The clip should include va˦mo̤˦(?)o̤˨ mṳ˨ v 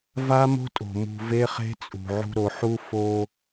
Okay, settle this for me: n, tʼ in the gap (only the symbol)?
tʼ